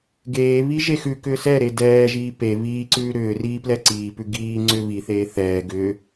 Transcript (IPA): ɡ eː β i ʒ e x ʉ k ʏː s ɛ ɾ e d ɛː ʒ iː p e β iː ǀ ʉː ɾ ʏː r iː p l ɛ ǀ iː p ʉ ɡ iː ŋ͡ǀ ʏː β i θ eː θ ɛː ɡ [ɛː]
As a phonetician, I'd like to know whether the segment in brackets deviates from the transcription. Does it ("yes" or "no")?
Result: yes